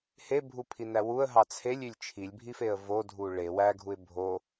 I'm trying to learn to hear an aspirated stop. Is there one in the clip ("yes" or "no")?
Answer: yes